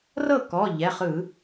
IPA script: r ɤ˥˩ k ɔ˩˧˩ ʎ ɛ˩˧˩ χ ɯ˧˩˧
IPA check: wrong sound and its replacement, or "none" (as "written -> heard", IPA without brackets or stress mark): none